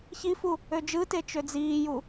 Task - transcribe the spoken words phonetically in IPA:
ç i f u | ø d͡ʒ ɯ t e t͡ʃ ø d͡z iː j u

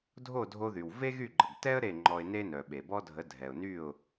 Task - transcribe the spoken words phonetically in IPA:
dʱ o˥˩ dʱ o˧ ð y˩ w v e˥ ɣ y˥˩ ɡ͡ǃ ə˩ ɡ t ɛ˥ ə̯ ɾ e˥˩ ŋ͡ǃ ɔ˧ ɪ̯ n e˥ n œ˩ ɓ e˩ b ɔ˥ dʱ ə˩˥ dʱ ɛ˩ ʊ̯ n y˥˩ ʊ̯

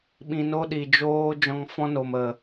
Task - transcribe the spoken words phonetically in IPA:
ɓ ĩ˧ n o˦ ɗ i˨ d͡ʒ oː˦ d͡ʒ ɔ̃˧ ŋ f ɔ̃˦ n o˨ m ə˨

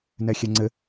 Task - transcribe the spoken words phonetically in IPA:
n ɛ xʲ ɛ ŋ͡ǀ ɘ

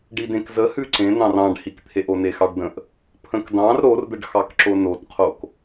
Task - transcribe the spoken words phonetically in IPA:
ɖ i d ẽ k z ə h ʉ ǀ ẽ n̪ ɑ̃ r ɑ̃ ɖ h i k t̪ʰ e ʔ o n e x ɑ ɖ d ə̃ ʔ | pʰ ə̃ k d ɑ̃ r ɾ o r d̪ ə ɖ x ɑ k ǁ o n o t qʰ o k

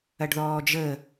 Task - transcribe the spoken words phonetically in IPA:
ɐ ɖ ð ɔː d͡ʒ ə

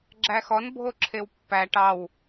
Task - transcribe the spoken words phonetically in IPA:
ɡ͡ǁ æ x ɔ n bʱ o ǁʰ e w pː æ ʈ ɑ w

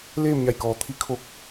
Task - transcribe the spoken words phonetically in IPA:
l eː˥˨ m ɲ a˧˩ j k ɔː˩˧ t̪ʰ i˧˥ kʰ o˧ k̚

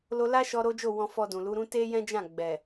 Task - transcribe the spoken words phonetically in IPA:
l o˧ l a˦ ʃ ɔ˧ ɾ o˦ d͡ʒ o˦˨ w ɔ̃˧ f ɔ˧ d ũ˨ l u˨˦ ɾ ũ˦ t e˦ j ɛ̃˦ d͡ʒ ã˦˨ ɡ͡b ɛ˨

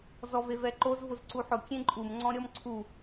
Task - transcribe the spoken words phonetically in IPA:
z ɔ v e v ɛ ǃ o z v ʊ z ǀ u ħ ʊ kʲ ẽ ǃʼ u m ŋ͡ǀ ɔ̃ ɾʲ ɔ m ǀʰ u

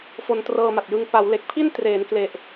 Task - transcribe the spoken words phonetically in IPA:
f o˧ n t r ɤː˧ m a˨˩ t̚ j ɯ˧ ŋ p a˩˦ w l e˨˩ k̚ pʰ i˥˩ n t r eː˩˦ n k l e˨˩ ʔ

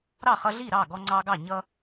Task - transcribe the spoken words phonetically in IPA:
ɾ ɑ˥˨ χ ʌ˦ ɮ i˥˨ ɾ ɑ˥˨ ɡ ɔ˦ ŋ͡ǀ ɑ˦ ɡ ɑ˥˨ ɲ ʌ˦

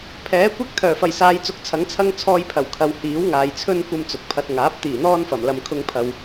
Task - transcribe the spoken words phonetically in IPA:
pʰ ɛː˨˥ kʷ ɪ˥ k̚ t̪ʰ œː˨˩ f ɐ˨˩ j s aː˨˧ j t͡s ʊ˨˥ k̚ t͡sʰ ɐ˨˥ ŋ t͡sʰ ɐ˥ ŋ t͡sʰ ɔː˧ j pʰ ɐ˨˩ w kʰ ɐ˨ w h iː˨˥ w ŋ aː˨ j t͡sʰ ɵ˥ n kʷ ɐ˥ m t͡s ʊ˨ k̚ pʰ ɐ˧ t̚ ŋ aː˨˥ p̚ t̪ iː˨˩ n̪ ɔː˥ n f ɐ˨˩ m l ɐ˧ m kʰ ʊ˥ ŋ pʰ ɐ˧ w

